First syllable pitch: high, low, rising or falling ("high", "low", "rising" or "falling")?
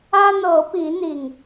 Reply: high